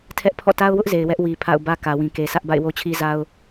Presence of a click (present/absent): absent